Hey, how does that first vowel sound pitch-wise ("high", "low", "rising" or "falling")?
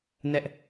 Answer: high